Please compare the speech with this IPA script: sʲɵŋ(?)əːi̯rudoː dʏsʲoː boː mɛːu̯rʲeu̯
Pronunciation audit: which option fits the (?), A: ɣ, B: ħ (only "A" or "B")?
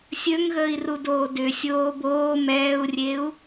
A